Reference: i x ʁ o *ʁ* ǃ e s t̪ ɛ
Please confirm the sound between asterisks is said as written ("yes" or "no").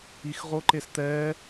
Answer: no